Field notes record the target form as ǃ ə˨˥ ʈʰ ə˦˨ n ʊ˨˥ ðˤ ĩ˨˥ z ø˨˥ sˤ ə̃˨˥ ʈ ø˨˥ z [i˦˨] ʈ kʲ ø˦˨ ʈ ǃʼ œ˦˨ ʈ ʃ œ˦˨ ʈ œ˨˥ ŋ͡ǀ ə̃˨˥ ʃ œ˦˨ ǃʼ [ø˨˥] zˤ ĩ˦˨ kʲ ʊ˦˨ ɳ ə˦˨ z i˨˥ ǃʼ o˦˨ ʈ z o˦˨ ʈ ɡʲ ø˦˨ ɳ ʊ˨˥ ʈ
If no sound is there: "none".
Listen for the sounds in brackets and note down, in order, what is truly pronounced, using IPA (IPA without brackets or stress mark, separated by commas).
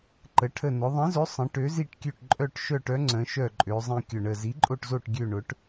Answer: i˦˨, ø˨˥